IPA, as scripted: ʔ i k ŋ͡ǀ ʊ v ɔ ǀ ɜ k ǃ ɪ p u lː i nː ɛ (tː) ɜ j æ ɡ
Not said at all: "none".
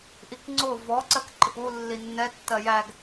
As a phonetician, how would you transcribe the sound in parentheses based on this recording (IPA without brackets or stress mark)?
tː